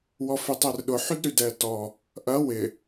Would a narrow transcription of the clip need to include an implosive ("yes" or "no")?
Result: yes